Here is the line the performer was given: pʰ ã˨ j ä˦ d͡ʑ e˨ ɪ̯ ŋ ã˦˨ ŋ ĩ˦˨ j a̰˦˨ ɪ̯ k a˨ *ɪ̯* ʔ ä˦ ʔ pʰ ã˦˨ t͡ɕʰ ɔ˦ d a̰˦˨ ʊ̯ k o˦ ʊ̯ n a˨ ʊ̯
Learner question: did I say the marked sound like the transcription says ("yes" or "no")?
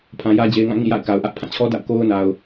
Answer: no